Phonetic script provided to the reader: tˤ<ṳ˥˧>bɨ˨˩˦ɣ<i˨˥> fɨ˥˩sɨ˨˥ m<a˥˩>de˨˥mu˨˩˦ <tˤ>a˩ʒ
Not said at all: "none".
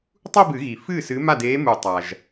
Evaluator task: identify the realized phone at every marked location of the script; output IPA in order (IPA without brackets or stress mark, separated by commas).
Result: u˥˧, i˩, a˥˩, tˤ